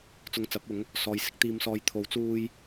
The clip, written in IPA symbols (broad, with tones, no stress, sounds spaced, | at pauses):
t͡s ʊ˧ ŋ t͡s ɐ˨˥ p̚ ʊ˨˥ ŋ | s ɔː˨ j s ɪ˨˥ k̚ t̪ iː˨ m s ɔː˨ j t̪ʰ o˨˥ w t͡s uː˧ j